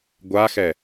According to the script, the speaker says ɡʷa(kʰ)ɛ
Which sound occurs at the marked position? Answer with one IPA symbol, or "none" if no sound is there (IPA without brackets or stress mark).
x